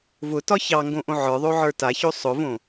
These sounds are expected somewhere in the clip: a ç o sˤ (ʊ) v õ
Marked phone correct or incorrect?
correct